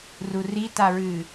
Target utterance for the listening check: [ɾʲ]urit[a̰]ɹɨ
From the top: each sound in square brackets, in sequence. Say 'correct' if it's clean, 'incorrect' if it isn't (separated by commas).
incorrect, incorrect